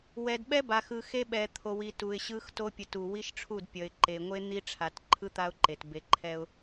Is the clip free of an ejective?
yes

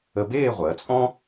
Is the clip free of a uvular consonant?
no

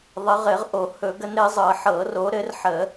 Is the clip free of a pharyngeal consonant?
no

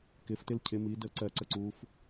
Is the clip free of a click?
no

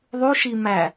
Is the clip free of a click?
yes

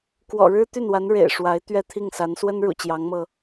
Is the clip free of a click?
yes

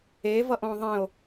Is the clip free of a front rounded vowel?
yes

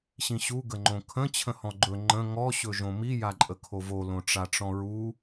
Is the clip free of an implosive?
yes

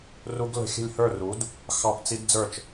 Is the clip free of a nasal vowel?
yes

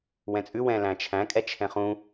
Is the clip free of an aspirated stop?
no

